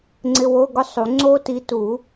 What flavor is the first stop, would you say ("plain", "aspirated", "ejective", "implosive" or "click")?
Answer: click